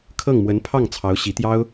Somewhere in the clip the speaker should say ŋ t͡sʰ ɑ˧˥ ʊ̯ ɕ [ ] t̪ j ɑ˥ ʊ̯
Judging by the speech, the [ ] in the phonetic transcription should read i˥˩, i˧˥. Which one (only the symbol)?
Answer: i˧˥